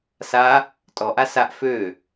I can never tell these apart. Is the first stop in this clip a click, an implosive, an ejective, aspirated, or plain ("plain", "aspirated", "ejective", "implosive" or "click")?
ejective